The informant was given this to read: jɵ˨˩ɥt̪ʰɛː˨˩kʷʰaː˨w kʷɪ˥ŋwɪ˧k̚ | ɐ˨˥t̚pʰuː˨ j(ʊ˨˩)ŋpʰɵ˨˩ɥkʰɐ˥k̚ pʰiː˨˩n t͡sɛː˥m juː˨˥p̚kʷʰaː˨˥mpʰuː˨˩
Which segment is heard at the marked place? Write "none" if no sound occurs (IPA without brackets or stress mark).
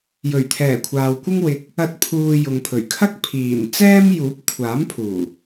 ʊ˨